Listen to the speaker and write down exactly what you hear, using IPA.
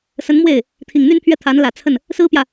s ə˧˥ n m w e˥˩ ɪ̯ | t̪ʰ i˨˩ ŋ n̪ y˥ n pʰ ɥ ɛ˥˩ t̪ʰ a˧˥ n l ä˨˩ t͡sʰ ə˥˩ n | s ɹ̩˥ p j ä˨

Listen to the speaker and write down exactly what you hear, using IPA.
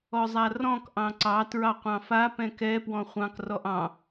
ɔ zˤ a r ɔ̃ k ʔ ɑ̃ ǀ ɑ t ɹ ɑ qʷ ɑ̃ f a p ɛ̃ k ɛ p w ɔ̃ χʷ ɑ̃ k r ɔ ʔ ɑ̃

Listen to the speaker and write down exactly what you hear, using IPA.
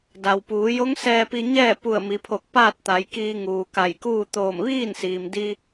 d a˩ w p uː˩˧ j o˧˥ ŋ s ɛː˧ p i˧ ɲ ɛː˥˨ p u˧˩ ə̯ m i˩˧ pʰ o˧˩ k̚ p aː˥˨ t̚ t̪ a˩˧ j k iː˧ ŋ uː˩ k a˧˩ j k uː˥˨ t̪ oː˧˩ m ʋ iː˥˨ n s iː˩ m d i˧

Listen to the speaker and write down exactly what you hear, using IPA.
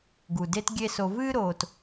ɡ u˩ d e˥ t ɡʲ e˦ s o˨ v ɨː˦ ɾ oː˨ t

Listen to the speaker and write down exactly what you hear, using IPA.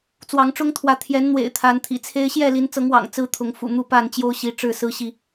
t͡s w ɑ˨˦ ŋ ʈ͡ʂ ʊ˦ ŋ t̪ʰ w ä˨˦ t̪ʰ j ɛ˨˦ n n̪ w ḛ˨˩ ɪ̯ t̪ʰ a˨˦ n t̪ʰ ḭ˨˩ t͡sʰ e˦ ɪ̯ ɕ j ɛ˥˨ l i˨˦ n t͡s ɤ˨˦ ŋ w ɑ̰˨˩ ŋ t͡s ɹ̩˦ t̪ʰ ʊ˨˦ ŋ f ṵ˨˩ n̪ u˥˨ p a˥˨ n t͡ɕ j o˦ ʊ̯ ɕ i˨˦ ʈ͡ʂ ɻ̩˥˨ s ɹ̩˦ ɕ i˨

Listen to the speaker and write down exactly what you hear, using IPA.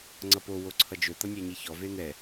ŋ͡ǀ ʌ p o w o ǀʰ ʌ d͡ʒ ɵ t̪ ʌ nʲ a ɲ i ç ɔ v e n̪ ɛ

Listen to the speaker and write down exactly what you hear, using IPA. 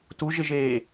t u ʒ ɪ ʒ eː

